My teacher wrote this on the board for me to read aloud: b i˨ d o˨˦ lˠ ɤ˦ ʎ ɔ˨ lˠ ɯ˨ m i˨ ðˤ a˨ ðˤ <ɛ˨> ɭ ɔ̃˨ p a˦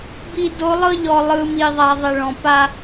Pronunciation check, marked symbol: correct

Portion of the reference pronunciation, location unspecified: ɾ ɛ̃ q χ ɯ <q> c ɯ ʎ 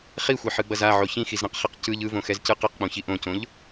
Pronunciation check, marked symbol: correct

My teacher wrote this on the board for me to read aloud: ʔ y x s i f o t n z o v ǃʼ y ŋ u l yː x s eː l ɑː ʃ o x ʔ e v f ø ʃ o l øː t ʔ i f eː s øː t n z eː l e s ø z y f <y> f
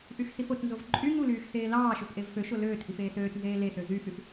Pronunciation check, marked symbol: correct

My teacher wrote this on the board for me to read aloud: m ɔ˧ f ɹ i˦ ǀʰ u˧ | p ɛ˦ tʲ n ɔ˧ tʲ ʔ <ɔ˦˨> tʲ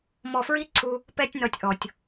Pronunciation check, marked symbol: incorrect: ɔ˨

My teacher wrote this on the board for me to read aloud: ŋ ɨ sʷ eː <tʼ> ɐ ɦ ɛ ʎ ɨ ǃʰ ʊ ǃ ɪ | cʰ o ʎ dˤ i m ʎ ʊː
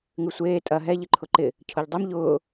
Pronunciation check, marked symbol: correct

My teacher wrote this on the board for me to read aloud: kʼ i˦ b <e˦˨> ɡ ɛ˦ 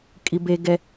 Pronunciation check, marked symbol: incorrect: e˦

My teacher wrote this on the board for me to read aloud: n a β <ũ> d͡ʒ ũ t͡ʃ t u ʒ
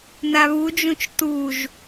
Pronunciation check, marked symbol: incorrect: u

